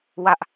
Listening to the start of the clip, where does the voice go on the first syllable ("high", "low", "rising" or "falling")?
high